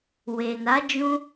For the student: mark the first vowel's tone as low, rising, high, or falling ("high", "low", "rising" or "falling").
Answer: low